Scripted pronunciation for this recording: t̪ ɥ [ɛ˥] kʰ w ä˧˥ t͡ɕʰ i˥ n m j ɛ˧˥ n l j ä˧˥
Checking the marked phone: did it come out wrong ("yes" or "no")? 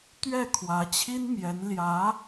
yes